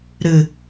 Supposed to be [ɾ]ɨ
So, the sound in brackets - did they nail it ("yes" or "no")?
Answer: yes